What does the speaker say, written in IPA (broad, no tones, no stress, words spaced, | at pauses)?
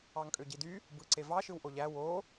ɑŋkʼøɟidy | bɯǀevɑ ʃɯwʔoʎæ wo